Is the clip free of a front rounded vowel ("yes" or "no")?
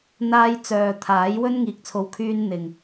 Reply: no